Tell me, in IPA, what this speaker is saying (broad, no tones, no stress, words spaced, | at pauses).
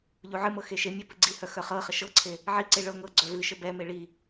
ʎuʕɨmɤ xeʃemʲœ pɨɡ͡ǀihœ xœχɤχə ʃɤǀʰe | ʕiǀe ɭɤ ŋɤ ɡ͡ǀœvɨʃə bɛme ɭi